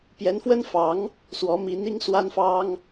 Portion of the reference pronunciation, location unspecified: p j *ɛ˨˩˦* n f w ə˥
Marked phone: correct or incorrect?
incorrect